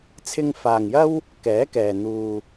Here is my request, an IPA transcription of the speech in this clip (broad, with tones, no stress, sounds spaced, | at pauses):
t͡sʰ ɪ˧ ŋ f aː˨ ŋ j ɐ˥ w | k ɛː˨˥ k ɛː˨ n̪ uː˧